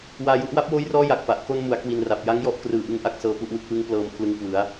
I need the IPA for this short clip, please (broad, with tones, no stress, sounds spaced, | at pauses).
w aː˧ j u˦˥ ʔ w a˦˥ p̚ w oː˦˥ j r ɔː˦˥ j a˨˩ k̚ p a˨˩ ʔ k o˧ n m u˩˦ a̯ k w i˧ n r a˨˩ p̚ j a˦˥ ŋ j ɔ˦˥ ʔ k r ɯː˨˩ ʔ ɯ˧ ŋ ʔ a˦˥ k̚ s ɤː˦˥ p u˥˩ ʔ w ɯ˦˥ k̚ w ɯ˦˥ ŋ p l ɤː˧ m pʰ l ɯ˧ ŋ k w ɯ˩˦ a̯